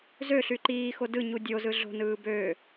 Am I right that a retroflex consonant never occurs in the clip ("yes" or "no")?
yes